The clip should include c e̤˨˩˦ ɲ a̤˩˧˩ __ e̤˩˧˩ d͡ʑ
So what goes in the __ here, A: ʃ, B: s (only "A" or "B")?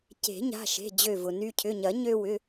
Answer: A